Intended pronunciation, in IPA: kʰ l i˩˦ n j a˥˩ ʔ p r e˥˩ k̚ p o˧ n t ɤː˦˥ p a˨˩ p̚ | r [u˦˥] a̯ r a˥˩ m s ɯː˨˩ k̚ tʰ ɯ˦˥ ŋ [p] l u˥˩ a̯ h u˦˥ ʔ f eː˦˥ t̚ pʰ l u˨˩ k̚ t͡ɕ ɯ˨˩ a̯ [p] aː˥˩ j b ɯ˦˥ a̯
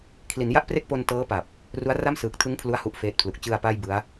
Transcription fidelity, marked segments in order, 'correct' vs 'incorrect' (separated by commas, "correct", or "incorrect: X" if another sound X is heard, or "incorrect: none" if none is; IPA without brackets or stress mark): correct, incorrect: pʰ, correct